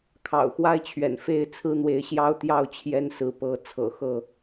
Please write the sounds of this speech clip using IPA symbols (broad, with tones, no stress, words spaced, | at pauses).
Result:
kʰɑ̰˨˩ʊ̯xwa˦ɪ̯t͡ɕʰɥɛ̰˨˩n fe˥˨ɪ̯ t͡sʰɹ̩˦n̪we˨˦ɪ̯ ɕjɑ˦ʊ̯t̪jɑ˥˨ʊ̯ t͡ɕʰjɛ˦nsɹ̩˨˦pɤ˨˦ t͡sʰɤ̰˨˩ xɤ˥˨